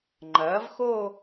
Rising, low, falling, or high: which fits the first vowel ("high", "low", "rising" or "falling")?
rising